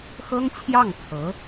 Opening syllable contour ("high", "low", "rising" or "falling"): high